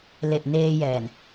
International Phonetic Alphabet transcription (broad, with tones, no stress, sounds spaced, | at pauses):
l e˨˩ ʔ n eː˧ j ɛː˨˩ n